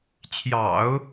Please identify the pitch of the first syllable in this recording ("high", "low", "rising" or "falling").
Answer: low